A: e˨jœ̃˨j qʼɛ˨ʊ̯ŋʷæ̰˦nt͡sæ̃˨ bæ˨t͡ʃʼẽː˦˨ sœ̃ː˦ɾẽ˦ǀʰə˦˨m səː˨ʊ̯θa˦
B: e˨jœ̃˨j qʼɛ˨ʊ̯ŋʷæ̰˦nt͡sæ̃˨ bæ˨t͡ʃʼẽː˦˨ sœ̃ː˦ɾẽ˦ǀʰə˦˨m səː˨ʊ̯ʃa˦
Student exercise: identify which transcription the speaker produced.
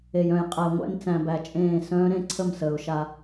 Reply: B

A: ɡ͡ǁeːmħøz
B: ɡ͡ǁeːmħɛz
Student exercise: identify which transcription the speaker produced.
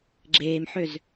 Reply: A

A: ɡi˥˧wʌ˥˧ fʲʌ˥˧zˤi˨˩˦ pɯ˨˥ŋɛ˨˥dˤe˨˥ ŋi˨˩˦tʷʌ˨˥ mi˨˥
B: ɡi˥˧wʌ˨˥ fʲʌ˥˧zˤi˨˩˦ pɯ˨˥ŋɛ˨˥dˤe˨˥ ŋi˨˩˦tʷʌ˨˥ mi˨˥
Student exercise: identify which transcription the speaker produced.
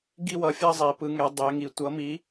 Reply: B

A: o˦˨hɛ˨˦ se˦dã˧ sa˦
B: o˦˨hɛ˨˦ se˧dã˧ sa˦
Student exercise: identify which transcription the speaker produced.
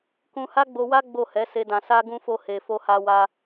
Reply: A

